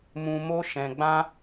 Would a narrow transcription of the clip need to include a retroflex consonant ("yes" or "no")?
no